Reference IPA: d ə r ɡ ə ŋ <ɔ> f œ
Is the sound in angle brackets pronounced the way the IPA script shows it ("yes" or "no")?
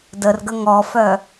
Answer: yes